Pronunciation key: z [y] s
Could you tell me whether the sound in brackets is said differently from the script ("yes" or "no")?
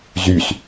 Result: no